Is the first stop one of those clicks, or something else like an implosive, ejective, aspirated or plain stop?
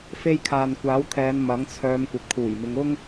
aspirated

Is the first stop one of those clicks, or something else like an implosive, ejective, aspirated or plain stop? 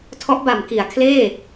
aspirated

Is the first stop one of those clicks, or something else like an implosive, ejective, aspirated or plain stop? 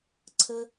click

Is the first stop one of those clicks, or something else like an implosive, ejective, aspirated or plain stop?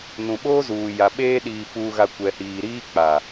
implosive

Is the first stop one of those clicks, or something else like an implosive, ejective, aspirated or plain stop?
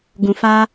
plain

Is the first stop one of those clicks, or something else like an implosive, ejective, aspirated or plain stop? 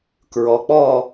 plain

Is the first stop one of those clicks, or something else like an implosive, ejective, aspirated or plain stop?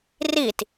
plain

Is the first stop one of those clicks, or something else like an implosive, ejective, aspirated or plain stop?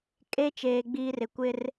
ejective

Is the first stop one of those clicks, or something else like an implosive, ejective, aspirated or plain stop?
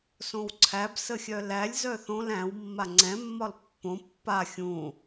click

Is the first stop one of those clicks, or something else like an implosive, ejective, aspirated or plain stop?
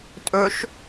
ejective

